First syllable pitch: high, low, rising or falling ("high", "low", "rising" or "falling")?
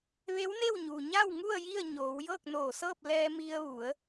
rising